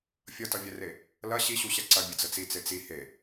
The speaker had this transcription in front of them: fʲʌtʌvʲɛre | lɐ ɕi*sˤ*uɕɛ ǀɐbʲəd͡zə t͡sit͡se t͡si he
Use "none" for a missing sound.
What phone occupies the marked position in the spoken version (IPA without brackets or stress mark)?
ɕ